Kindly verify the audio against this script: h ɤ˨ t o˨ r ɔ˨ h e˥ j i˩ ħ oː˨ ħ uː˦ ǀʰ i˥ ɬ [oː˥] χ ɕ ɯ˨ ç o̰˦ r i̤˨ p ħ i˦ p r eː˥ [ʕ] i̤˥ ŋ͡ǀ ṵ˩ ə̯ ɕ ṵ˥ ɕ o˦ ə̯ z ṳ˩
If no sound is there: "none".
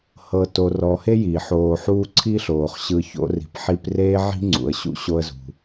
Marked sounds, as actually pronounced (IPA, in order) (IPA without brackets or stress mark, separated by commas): oː˩, ʕ